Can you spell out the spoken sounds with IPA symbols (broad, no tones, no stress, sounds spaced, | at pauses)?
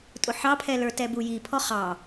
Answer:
tʼ ʊ ħ ɑ pʰ ɛ l ə˞ t ɛ b u j i pʰ ɔ χ ɑ